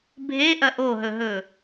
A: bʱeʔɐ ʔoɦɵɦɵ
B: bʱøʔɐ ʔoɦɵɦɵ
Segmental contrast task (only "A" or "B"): A